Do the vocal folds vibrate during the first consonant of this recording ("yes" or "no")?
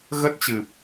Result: yes